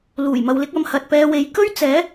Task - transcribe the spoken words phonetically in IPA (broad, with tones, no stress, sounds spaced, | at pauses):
l uː˨˩ j m ɐ˨ w l ɪ˧ k̚ ɐ˨˧ m h ɐ˨ t̚ p ɛː˧ w e˨˧ j k ɵ˥ ɥ t͡s ɛː˨˥